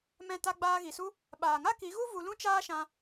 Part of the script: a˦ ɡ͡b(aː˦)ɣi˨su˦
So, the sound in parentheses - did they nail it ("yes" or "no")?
no